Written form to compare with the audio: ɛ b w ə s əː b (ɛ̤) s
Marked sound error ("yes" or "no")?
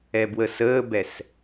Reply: yes